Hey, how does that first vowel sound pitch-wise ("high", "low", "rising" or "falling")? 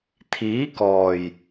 rising